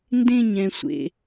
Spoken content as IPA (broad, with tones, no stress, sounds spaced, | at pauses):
n d ẽ˥˧ ɲ ɛ̃˩ sʷ ḛ˩